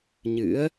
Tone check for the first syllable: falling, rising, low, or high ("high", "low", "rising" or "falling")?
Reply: rising